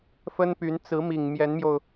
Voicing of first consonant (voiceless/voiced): voiceless